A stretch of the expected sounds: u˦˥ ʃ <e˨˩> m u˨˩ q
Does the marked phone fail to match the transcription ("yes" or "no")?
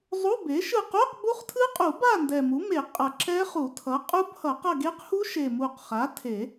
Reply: no